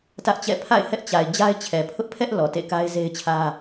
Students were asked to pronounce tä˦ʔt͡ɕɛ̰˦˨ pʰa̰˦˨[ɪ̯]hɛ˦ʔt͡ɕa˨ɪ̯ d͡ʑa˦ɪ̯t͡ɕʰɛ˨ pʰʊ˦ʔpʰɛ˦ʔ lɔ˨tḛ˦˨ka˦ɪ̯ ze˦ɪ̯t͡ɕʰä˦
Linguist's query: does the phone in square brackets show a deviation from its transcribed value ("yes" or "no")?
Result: no